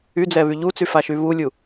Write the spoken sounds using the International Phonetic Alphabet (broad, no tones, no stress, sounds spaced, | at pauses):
y d͡z ɛ β y ʎ u t͡s y f a ʃ y β u lʲ u